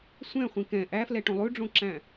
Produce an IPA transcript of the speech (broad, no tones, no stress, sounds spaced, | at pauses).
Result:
sʷ ɛ̃ χʷ ĩ k ɛ̃ ʔ æ f l ɛ ʈ õ lˠ ʉ ɖ͡ʐ õ ǁ æ̃